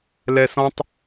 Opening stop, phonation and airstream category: plain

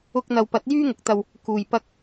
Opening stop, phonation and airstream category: plain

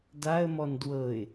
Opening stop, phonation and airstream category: plain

